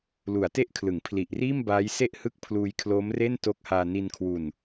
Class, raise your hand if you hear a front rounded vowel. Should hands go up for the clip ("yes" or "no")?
no